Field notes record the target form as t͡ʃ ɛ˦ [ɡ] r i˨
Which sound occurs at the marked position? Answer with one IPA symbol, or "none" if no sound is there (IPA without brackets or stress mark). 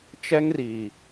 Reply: ŋ